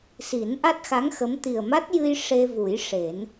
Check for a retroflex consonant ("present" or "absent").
present